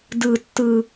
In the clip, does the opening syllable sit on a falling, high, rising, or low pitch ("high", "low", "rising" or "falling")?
low